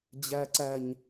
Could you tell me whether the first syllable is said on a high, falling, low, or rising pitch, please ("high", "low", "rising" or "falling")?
low